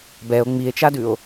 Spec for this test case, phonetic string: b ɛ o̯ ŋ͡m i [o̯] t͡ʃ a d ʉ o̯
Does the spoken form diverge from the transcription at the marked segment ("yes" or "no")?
yes